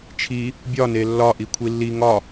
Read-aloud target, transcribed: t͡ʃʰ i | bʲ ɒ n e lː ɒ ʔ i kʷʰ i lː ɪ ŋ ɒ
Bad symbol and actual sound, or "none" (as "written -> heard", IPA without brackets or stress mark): ɪ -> i